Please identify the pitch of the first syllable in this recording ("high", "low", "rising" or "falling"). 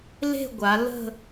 falling